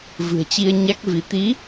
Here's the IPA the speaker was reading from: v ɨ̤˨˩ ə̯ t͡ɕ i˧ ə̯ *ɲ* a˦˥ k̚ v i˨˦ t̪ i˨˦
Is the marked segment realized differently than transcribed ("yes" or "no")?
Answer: no